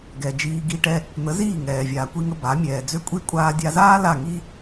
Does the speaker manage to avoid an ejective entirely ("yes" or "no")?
no